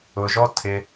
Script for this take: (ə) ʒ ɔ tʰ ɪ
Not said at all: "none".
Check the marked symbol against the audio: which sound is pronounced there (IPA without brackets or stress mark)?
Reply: ʊ